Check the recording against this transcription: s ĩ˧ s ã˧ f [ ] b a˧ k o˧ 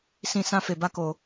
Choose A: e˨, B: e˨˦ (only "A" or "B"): A